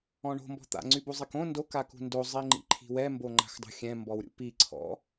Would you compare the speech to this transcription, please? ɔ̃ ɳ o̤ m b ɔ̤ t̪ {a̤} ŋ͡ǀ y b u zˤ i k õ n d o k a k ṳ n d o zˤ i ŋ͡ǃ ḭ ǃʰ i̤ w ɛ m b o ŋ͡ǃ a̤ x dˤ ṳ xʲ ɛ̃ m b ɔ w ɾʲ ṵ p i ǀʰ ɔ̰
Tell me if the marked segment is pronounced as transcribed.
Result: no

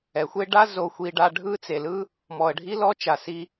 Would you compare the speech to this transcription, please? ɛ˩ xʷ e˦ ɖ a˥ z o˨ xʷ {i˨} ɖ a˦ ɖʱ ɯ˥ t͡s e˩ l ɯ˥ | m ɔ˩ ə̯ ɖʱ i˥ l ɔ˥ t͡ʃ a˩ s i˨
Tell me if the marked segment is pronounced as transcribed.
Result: yes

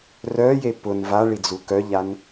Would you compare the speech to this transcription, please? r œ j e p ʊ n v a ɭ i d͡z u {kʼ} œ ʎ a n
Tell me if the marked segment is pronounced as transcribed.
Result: no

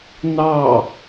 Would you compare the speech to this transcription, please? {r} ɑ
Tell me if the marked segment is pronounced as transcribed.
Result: no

